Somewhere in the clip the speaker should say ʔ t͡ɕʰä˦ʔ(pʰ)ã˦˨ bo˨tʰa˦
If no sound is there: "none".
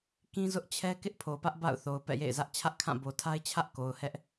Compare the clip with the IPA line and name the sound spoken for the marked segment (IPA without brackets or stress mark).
kʰ